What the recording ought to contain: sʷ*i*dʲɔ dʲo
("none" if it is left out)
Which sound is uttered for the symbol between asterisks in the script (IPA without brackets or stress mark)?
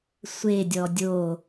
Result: e